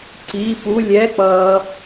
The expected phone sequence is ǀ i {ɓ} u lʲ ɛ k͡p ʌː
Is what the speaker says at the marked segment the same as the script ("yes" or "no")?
no